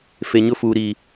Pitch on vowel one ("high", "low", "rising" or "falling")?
low